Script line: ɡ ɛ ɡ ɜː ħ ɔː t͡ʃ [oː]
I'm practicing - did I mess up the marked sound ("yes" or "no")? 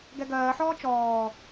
yes